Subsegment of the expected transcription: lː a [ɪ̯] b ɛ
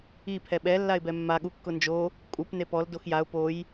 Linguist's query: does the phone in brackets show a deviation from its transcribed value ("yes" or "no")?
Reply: no